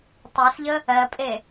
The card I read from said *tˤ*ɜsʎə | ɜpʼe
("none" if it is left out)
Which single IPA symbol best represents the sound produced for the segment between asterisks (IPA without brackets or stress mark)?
tˤ